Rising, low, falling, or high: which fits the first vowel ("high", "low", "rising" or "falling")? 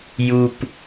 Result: high